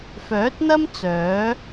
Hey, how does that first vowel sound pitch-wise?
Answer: rising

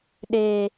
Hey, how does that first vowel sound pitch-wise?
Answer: low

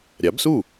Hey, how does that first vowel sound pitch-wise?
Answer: rising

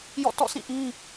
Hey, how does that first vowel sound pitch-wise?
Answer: falling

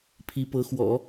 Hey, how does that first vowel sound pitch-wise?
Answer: rising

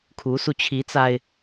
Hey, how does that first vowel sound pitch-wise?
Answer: rising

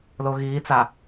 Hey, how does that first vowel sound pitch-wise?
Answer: low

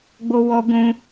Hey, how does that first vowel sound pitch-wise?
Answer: high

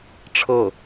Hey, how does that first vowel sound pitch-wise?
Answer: falling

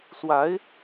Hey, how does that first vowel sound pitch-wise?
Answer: rising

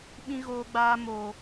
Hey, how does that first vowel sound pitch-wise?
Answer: high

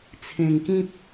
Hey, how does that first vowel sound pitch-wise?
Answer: low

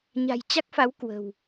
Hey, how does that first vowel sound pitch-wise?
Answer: low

